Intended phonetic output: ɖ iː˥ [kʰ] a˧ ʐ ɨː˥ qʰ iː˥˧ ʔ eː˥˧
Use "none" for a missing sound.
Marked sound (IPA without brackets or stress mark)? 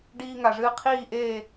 ŋ